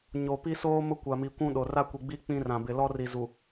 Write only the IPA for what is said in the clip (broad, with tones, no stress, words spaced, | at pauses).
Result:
ɲo˨pi˦soː˦ mʊ˦kʷa˨mi˨ kʷũ˦ ɗo˨ ra˦kʷi˨ɡ͡biː˦ k͡pĩ˦rã˨bɪ˨ lɔ˦ri˨ zu˨